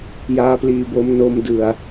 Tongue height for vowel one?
low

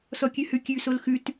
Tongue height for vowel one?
mid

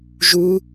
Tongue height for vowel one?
high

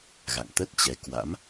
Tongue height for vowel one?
low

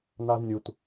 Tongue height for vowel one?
low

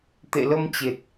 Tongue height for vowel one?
mid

